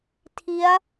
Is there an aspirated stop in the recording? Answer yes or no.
yes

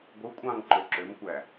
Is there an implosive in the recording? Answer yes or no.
no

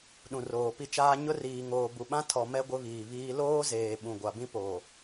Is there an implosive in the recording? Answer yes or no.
yes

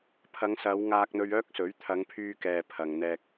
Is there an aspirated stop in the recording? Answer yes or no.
yes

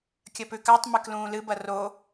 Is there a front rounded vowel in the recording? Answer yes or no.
no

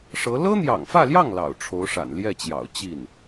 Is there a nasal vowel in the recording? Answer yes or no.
no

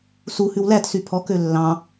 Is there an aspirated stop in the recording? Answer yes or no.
yes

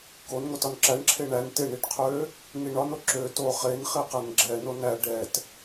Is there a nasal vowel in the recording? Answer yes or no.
no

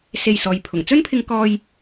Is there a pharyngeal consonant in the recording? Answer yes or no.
no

